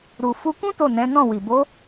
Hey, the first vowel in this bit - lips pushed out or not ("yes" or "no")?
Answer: yes